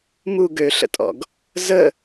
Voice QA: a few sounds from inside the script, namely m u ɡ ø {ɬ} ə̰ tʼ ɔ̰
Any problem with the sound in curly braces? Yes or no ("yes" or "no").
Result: no